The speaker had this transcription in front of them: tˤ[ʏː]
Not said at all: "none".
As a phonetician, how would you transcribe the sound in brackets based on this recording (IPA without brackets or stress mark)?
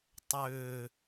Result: ʏː